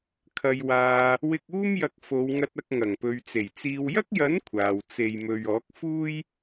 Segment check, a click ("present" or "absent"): absent